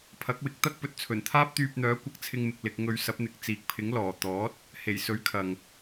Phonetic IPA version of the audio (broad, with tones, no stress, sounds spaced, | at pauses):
pʰ ɐ˨˥ k̚ w ɪ˨˥ k̚ t̪ ɐ˥ k̚ p ɵ˨ t̚ t͡sʰ ɵ˨˩ n t̪ʰ aː˥ p̚ t̪ yː˧ p̚ n̪ œː˨˥ kʷ ɐ˧ k̚ t͡sʰ ɪ˧ ŋ m ɪ˨ k̚ l ɪ˧ k̚ ŋ ɵ˧ ɥ s ɐ˨˥ p̚ n̪ ɪ˨ k̚ t͡s iː˨ k̚ pʰ ɪ˨˥ ŋ l ɔː˨˩ t̪ ɔː˨˥ t̚ | h e˨˩ j s ɵ˨˥ ɥ kʰ ɐ˨ ŋ